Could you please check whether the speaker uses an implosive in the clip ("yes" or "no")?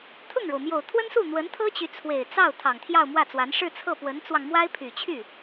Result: no